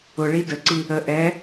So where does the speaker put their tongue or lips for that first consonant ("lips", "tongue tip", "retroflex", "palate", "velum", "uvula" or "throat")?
retroflex